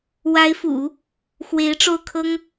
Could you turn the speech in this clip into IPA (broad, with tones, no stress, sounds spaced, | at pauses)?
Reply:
w a˧˥ ɪ̯ f ṵ˨˩˦ | x w e˧˥ ɪ̯ ʈ͡ʂ o˥˩ ʊ̯ kʰ ɤ˥ ŋ